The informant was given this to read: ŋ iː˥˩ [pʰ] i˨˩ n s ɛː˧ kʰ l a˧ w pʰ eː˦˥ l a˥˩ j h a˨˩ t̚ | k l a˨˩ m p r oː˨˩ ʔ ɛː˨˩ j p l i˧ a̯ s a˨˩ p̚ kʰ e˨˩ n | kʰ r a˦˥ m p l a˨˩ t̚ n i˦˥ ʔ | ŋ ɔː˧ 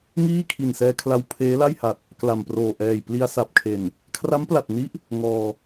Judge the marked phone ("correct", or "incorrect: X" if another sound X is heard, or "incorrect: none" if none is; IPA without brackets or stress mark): incorrect: kʰ